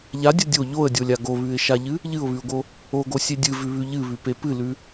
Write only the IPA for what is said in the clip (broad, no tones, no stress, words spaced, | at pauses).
ʎadʲɐ dʲo ʎoə̯dʲolʲa ɡoβʉɪ̯ʃaʎɨ | ʎɨʊ̯βʉʊ̯ɡo | oɡosʲe dʲɨvʉβʉ ʎɨβʉpe pɨlʉ